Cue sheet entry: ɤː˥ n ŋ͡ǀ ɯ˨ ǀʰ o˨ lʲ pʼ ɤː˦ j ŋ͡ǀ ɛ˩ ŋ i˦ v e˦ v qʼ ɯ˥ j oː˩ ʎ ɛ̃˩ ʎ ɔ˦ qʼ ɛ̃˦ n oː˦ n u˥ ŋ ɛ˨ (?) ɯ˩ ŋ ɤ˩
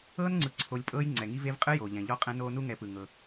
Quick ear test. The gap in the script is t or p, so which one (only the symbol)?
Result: p